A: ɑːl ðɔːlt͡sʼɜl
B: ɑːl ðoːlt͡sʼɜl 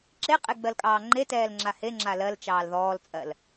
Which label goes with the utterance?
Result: A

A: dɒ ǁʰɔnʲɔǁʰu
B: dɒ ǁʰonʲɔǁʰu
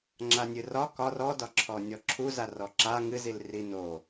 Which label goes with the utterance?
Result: A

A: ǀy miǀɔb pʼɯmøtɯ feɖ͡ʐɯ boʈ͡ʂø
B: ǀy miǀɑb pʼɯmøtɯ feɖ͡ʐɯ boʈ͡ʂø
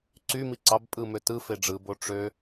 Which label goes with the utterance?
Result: B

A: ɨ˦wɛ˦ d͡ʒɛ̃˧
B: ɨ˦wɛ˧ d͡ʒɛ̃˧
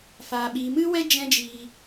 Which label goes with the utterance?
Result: A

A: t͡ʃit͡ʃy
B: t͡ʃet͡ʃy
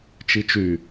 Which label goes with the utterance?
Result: A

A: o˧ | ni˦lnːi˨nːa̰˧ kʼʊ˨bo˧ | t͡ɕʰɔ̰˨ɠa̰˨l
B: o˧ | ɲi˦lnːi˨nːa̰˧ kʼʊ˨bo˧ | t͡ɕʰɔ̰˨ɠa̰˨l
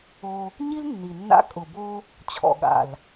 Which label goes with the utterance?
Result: B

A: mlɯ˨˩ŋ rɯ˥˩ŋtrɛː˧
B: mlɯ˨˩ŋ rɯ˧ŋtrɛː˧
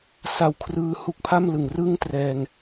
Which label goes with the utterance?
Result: A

